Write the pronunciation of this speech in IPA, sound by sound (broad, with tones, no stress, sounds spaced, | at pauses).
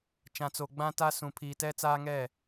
t͡ʃ ã˨ t͡s o˨ ɡ͡b ã˦ t a˦ s ũ˨ pʰ iː˨ t ɛ˦ t͡s aː˦ ŋ ɛ˦˨